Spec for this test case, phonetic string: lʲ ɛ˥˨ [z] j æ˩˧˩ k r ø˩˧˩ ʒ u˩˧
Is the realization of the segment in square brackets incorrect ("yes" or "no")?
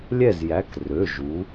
no